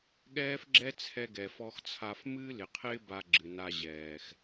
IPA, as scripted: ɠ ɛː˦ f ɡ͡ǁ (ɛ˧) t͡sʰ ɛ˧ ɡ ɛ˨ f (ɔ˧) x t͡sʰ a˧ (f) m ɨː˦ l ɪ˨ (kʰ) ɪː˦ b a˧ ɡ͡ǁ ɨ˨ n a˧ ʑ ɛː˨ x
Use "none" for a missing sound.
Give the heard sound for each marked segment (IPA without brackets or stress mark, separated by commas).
ɛ˦, ɔ˧, f, qʰ